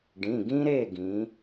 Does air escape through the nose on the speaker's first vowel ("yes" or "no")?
yes